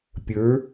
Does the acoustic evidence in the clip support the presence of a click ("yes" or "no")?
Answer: no